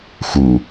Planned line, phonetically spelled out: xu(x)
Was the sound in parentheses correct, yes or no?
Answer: no